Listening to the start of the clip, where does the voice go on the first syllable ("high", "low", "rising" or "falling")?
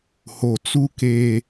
low